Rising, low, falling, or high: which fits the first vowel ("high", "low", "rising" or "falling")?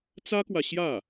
high